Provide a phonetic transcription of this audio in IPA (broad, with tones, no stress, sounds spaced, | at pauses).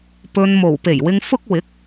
p ɵ˨ n m o˨˩ w p e˨˩ j w ɪ˨ ŋ f ʊ˧ k̚ w ɪ˨˥ k̚